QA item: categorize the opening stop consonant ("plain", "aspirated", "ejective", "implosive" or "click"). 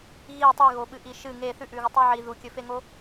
plain